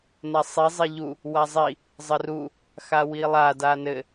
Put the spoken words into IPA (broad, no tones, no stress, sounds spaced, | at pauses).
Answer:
n a sˤ i zˤ i ʎ u | w a zˤ i | zˤ ɘ r u | x a w i lˠ a d a n ɘ